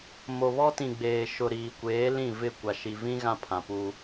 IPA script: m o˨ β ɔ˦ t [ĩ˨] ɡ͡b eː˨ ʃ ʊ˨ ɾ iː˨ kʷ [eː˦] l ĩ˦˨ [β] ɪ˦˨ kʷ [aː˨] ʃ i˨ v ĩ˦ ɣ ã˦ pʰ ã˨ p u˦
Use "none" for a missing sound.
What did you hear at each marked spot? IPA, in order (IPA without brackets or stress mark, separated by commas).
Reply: ĩ˨, eː˨˦, v, a˨